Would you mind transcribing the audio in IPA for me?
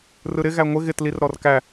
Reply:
r ɯ ɾ ɪ ɣ æ ŋʷ ɪ ɣ ɪ t l i r ɾ ɔ r k æ

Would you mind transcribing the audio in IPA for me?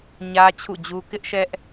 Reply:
ɲ ä˦ t͡ɕʰ ṵ˦˨ d͡ʑ u˦ k ɪ˦ ʔ ʃ ɛ˦ ʔ

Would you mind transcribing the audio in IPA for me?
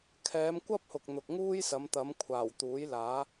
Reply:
kʰ ɛː˨˧ m kʷ ɐ˥ p̚ h ʊ˨ k̚ n̪ ʊ˨ k̚ ŋ uː˥ j s ɐ˨˧ m t̪ ɐ˨˧ m kʷʰ aː˨˩ w t̪ uː˨˥ j l aː˨˥

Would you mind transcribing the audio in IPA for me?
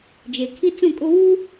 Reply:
d͡ʒ e˨ kʰ i˦ t͡s ũ˦˨ kʼ ʊ˦ β uː˦

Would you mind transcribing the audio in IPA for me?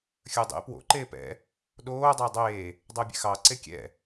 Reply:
xʲ ə˞ dˤ ḛ p w o̰ ǃ eː p ɛ̰ | ɗ oː dˤ əː dˤ eː | dˤ əː bʲ ɛ̰ x ɑ ǀ e kʲ ɛ̰

